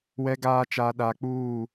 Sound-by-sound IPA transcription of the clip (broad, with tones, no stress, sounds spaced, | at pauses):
w ɛ˨ ɡ aː˨ t͡ʃ a˨ ɗ a˨ k͡p uː˦˨